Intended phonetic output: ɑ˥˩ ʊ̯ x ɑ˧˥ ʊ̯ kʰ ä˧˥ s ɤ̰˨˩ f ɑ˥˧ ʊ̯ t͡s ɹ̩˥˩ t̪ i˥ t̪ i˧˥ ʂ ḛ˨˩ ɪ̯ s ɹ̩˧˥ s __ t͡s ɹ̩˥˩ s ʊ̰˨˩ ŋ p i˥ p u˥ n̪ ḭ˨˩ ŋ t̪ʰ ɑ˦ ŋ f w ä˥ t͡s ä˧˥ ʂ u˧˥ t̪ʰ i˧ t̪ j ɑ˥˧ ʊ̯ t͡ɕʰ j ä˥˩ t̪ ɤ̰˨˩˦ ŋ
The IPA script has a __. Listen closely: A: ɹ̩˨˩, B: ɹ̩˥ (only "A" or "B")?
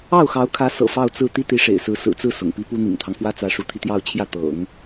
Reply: A